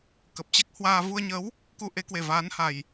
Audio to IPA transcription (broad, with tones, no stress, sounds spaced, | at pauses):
k ə˨˩ p̚ t͡ɕ ɛ˦˥ k̚ h w aː˧ v u˧ ə̯ ɲ ə˨˦ w | k u˧ ʔ e˨˦ k w e˨˩ v aː˨˦ n h a˨˩ j